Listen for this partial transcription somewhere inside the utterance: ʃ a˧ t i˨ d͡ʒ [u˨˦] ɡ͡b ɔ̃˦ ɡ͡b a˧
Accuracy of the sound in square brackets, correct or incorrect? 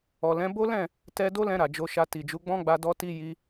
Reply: correct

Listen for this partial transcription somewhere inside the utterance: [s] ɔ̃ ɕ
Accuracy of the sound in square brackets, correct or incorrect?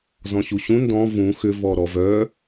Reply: incorrect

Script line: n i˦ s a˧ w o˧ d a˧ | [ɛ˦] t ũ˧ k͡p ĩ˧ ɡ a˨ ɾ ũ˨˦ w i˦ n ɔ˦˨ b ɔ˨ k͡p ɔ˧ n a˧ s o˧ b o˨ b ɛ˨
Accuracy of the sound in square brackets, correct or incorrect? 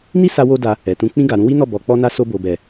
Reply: incorrect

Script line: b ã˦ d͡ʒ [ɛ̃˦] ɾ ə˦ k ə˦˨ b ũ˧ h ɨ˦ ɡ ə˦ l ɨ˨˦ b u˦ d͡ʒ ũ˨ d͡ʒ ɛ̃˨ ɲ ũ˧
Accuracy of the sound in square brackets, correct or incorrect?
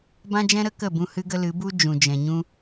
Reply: correct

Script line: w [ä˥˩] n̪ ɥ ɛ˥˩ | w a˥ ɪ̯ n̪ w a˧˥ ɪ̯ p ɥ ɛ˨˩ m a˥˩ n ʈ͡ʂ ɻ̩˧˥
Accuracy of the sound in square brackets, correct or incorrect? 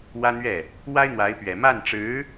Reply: incorrect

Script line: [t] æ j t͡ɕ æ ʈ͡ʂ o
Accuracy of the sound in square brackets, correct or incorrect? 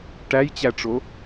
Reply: incorrect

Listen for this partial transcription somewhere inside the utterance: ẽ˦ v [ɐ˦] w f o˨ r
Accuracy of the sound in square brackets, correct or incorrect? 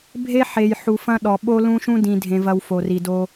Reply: correct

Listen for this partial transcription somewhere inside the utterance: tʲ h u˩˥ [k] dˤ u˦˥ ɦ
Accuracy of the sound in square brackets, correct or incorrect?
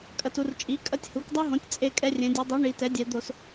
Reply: correct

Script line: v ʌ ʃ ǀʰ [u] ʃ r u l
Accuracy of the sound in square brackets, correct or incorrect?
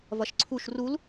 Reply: correct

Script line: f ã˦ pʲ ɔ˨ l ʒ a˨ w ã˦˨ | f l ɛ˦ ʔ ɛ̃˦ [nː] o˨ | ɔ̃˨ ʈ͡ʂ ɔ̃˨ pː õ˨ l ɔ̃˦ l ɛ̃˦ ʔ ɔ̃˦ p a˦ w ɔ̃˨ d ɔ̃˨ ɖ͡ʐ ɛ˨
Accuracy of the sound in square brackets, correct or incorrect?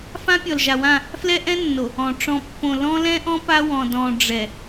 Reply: correct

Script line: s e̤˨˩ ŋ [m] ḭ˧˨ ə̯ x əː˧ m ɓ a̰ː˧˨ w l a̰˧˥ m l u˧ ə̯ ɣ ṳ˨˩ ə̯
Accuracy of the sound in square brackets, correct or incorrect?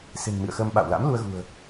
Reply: correct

